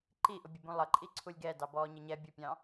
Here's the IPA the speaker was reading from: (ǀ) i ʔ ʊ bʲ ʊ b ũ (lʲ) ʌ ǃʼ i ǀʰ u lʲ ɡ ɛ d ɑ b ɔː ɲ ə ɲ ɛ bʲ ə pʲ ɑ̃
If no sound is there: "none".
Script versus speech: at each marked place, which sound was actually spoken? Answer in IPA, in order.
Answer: ǃ, lˠ

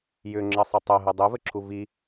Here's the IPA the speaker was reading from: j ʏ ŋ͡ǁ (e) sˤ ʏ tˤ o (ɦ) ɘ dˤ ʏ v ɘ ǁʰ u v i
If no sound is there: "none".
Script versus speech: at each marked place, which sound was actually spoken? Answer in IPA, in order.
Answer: ɘ, ɦ

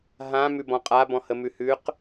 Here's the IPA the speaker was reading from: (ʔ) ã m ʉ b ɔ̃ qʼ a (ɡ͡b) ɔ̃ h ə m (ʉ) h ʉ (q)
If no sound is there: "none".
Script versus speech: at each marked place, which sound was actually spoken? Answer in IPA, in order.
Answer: ɦ, b, ʉ, q

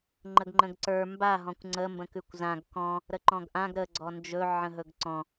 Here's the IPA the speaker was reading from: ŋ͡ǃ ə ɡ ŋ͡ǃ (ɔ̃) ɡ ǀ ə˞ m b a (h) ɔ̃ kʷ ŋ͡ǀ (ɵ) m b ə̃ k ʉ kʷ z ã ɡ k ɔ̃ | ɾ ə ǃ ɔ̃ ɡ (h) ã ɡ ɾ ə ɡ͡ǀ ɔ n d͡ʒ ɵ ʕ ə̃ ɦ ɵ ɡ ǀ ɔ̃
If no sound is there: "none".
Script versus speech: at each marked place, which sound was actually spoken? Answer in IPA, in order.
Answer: ə̃, ɦ, ə, ʔ

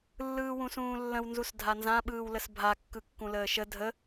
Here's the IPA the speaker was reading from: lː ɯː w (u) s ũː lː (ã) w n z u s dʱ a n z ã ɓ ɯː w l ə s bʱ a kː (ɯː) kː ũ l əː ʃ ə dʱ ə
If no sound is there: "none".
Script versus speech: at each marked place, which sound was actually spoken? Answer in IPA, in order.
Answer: ũ, ə̃, ɯ

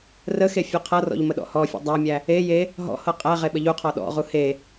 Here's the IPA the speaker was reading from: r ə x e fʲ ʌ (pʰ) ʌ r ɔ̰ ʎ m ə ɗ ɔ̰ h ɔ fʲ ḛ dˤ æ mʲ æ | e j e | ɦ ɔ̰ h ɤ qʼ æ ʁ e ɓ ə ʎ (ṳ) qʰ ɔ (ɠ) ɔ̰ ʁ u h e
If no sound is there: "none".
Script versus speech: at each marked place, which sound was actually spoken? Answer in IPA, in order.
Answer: qʰ, u, ɗ

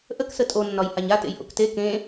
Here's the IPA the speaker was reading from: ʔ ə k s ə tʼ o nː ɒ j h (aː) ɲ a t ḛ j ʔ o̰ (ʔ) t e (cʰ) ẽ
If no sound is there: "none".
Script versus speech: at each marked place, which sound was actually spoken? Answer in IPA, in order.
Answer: a, k, k

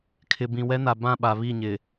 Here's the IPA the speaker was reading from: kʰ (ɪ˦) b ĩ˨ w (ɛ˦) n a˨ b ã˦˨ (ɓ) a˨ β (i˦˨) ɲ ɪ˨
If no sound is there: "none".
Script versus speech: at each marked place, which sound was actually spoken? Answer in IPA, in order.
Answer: ɪ˨, ɛ˦, ɓ, i˦˨

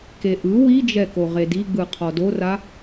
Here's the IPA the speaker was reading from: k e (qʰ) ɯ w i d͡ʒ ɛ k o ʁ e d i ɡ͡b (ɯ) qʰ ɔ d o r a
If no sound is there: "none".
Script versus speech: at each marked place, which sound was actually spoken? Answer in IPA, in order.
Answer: ʔ, ɯ

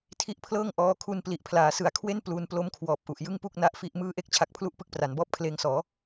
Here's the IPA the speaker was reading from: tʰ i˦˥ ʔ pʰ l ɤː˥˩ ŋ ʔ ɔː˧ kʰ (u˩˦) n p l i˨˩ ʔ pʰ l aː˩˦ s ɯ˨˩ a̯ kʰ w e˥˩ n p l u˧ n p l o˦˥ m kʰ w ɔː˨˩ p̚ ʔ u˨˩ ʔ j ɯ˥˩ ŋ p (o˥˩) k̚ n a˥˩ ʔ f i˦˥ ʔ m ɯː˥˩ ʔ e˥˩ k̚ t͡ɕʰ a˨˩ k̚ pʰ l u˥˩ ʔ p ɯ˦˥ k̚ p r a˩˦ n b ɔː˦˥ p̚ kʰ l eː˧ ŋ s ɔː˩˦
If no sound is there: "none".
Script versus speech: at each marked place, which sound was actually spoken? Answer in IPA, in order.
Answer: u˧, u˥˩

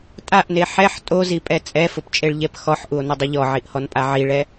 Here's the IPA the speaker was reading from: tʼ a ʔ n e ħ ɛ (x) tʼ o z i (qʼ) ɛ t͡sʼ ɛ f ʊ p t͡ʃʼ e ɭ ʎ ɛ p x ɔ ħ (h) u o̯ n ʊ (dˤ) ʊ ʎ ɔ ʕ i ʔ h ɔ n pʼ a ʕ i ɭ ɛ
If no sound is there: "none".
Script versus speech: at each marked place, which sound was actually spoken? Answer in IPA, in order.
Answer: ħ, pʼ, ʔ, dˤ

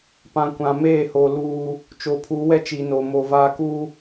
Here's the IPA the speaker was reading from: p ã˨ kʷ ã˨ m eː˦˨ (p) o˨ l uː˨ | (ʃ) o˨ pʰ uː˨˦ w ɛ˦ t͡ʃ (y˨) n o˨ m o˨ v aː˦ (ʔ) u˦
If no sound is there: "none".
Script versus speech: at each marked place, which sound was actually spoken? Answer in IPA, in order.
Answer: h, t͡ʃ, i˨, k

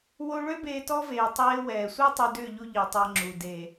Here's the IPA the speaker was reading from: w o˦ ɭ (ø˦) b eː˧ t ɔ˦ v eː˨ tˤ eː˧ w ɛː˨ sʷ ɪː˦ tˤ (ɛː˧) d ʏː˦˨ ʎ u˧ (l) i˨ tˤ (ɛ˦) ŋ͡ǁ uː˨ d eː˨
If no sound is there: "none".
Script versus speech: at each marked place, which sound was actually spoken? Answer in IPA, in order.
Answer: ø˦, ɛ˧, ʎ, ɛ˧

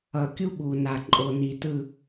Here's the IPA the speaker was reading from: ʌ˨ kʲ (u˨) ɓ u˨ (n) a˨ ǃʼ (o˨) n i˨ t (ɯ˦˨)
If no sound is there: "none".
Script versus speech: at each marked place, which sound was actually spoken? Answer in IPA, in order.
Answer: u˦, n, o˨, ɯ˦˨

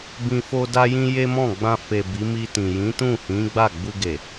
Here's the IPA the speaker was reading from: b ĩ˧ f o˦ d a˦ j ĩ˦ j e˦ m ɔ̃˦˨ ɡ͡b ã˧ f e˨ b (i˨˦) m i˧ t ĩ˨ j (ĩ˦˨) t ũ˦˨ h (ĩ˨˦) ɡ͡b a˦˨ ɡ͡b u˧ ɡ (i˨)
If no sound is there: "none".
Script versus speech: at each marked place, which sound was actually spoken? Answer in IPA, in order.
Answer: i˨˦, ĩ˨˦, ĩ˨˦, e˨

